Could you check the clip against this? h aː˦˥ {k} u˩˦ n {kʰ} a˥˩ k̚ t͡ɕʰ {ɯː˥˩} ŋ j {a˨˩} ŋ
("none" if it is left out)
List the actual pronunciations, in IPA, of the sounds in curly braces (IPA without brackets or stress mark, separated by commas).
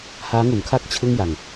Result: ŋ, kʰ, ɯ˥˩, a˧